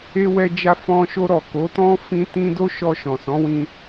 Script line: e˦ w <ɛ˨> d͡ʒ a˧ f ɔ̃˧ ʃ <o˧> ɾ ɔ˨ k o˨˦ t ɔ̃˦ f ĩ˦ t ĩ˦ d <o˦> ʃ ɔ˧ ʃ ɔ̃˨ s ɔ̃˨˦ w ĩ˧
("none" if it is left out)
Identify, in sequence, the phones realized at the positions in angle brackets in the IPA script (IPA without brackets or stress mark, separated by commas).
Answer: ɛ˧, o˧, o˦